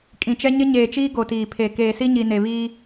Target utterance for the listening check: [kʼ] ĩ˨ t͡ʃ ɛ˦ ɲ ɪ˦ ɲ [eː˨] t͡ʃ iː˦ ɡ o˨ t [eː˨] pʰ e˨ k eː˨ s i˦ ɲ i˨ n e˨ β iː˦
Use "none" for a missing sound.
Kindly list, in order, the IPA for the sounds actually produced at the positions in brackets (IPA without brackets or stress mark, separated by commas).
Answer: kʼ, eː˨, iː˨